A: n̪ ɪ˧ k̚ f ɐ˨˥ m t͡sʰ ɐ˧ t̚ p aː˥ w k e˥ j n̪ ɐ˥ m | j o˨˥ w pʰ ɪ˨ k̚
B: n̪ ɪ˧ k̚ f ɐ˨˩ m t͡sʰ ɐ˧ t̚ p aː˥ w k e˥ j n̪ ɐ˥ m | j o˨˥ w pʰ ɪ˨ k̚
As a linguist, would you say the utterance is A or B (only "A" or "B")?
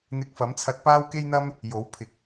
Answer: A